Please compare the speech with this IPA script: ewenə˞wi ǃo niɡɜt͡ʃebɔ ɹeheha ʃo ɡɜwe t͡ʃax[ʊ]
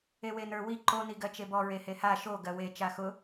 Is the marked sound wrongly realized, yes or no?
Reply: no